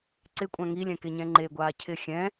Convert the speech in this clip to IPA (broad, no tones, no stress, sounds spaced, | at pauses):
ǀ ɪ kʷʼ ã ŋ i lʲ ɛ̃ k e ɲ ɛ̃ ŋ͡ǃ e ɡʷ aː cʰ ɪ xʲ ɛ̃